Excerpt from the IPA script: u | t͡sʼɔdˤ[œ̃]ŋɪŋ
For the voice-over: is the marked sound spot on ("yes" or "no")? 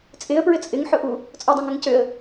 yes